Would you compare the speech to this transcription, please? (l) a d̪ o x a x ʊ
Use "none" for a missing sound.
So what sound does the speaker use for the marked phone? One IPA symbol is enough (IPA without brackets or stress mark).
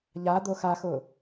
ʎ